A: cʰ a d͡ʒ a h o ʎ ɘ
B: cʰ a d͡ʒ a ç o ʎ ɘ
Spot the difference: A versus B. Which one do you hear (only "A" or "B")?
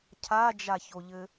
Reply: B